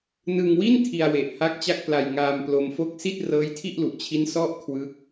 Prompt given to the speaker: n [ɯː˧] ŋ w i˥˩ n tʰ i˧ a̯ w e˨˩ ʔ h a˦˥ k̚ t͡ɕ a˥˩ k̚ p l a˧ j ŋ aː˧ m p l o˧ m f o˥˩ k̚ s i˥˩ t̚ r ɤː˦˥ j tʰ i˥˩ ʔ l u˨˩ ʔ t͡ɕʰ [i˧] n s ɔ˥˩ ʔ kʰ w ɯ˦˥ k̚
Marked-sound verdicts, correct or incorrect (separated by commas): incorrect, incorrect